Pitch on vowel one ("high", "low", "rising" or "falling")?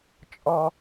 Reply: high